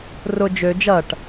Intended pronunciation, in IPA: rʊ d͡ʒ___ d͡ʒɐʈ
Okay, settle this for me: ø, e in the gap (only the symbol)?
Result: ø